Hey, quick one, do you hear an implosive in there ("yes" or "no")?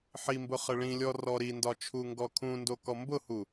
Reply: no